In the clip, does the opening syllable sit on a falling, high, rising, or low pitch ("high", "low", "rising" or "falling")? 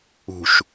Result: low